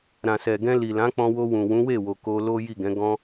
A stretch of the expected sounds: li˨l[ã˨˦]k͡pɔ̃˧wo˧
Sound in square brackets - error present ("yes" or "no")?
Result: no